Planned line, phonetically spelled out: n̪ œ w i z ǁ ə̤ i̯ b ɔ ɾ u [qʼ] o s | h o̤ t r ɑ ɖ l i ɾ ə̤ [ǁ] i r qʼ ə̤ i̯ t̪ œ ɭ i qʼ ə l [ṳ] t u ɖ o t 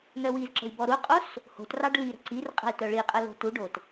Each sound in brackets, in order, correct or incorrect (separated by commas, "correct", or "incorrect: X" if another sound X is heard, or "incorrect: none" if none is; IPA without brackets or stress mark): correct, incorrect: ǀ, incorrect: o̤